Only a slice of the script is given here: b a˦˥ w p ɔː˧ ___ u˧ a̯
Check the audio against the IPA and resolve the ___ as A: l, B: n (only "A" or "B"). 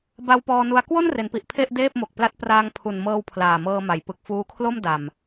B